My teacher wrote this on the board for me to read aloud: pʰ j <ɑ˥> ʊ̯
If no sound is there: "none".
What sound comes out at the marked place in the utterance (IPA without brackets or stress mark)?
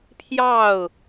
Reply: ɑ˥˩